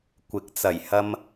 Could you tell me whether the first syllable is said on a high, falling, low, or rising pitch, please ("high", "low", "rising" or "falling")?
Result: rising